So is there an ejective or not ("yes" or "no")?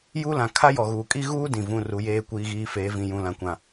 yes